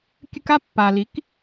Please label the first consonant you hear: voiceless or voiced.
voiceless